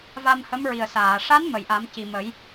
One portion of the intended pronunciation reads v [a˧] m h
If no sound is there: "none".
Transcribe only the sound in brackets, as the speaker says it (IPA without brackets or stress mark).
a˧